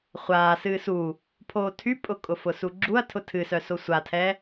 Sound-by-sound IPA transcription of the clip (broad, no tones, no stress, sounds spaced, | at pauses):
χʷ aː s ɨː s u | pʰ oː tʰ y pʼ ʊ kʼ ʊ f ʊ s u ɡ͡ǁ u ɐ̯ tʰ ʊ tʰ ɨ s œ s o sʷ a tʰ ɛ